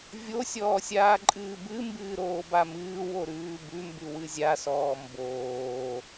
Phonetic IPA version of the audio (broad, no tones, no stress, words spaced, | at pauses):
vʲosʲɔːsʲaːǃʼɨː bɨ mbɨːɾoːbamɨː woɾʉːbʉmbʉ wɨzʲasɔː mboː